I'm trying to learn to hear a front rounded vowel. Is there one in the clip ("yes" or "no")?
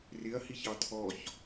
no